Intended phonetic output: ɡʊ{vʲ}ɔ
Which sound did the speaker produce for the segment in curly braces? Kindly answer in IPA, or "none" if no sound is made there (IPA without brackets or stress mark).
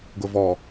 v